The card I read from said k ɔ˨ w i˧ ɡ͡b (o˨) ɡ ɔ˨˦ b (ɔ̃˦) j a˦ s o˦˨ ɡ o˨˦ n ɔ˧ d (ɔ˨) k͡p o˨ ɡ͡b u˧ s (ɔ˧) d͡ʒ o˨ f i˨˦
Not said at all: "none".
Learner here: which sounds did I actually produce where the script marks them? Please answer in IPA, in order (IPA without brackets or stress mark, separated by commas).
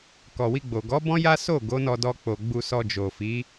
o˨, ɔ̃˦, ɔ˧, ɔ˧